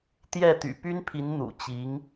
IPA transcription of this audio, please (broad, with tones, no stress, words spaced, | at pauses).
t̪jɛ˥˩t̪y̰˨˩ py˥npʰi˧˥n n̪ṵ˨˩t͡ɕi˧˥ŋ